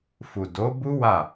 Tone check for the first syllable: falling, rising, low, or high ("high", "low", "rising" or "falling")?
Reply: low